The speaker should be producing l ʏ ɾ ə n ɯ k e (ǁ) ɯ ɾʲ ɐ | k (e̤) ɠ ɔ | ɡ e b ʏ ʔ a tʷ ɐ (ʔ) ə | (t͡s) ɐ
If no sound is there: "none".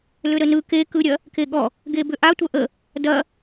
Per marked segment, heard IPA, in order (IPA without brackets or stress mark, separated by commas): k, e, ʔ, d